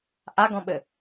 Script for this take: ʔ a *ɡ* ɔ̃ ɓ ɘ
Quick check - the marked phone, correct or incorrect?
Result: correct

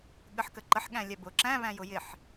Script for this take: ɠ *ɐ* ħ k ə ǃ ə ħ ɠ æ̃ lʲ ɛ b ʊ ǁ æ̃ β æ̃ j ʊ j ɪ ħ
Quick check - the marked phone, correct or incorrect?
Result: incorrect: ə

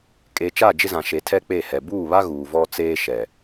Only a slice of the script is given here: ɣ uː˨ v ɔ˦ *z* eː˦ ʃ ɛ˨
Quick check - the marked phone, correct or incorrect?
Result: incorrect: t͡s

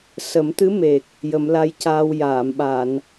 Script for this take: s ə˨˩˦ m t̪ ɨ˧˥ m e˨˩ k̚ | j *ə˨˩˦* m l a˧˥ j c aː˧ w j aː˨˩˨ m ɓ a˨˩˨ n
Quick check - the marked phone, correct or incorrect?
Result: correct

